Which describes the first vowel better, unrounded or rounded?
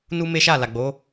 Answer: rounded